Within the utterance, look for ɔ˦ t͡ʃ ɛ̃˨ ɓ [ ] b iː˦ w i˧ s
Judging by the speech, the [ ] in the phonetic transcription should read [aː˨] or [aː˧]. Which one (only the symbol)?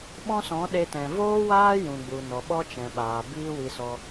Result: aː˨